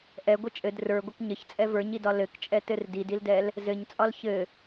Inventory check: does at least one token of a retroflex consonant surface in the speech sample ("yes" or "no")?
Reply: no